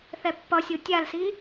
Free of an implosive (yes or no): yes